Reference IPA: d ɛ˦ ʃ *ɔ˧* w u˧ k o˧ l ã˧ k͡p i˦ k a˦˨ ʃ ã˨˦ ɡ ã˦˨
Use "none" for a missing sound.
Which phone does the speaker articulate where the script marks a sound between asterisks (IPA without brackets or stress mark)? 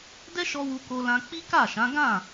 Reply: ɔ˧